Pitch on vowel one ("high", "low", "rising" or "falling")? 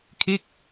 falling